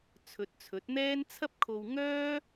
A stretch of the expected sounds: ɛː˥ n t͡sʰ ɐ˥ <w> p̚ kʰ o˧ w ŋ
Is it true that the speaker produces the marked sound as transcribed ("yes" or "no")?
no